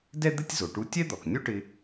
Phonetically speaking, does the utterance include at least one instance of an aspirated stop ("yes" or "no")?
no